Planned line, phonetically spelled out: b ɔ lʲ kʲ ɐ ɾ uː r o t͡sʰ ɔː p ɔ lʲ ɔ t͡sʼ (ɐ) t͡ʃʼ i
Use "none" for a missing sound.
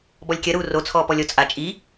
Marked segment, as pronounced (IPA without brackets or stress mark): a